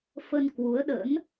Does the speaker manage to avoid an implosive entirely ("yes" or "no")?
no